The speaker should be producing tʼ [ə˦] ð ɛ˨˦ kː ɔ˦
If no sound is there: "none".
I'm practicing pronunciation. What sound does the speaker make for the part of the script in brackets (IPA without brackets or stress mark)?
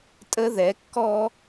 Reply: ə˦